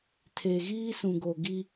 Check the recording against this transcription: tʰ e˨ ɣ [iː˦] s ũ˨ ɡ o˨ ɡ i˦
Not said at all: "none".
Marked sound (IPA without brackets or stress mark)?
iː˦